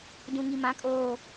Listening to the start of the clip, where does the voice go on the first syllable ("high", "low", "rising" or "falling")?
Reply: low